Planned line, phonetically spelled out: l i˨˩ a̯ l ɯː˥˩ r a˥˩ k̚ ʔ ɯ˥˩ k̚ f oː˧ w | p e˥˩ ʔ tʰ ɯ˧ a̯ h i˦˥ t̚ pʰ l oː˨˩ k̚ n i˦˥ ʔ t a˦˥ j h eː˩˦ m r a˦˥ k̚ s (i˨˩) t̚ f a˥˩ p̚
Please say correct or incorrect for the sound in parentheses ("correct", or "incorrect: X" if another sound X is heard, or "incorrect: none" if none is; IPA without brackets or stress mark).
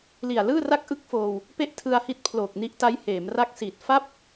correct